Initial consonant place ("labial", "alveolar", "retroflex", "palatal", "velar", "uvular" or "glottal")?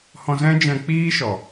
glottal